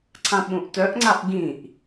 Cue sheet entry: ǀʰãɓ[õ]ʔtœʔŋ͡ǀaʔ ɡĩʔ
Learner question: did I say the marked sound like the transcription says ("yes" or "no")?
no